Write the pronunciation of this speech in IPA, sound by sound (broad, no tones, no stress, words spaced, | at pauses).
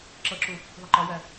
ǁʌǁu | ðˤɪǃɒwæ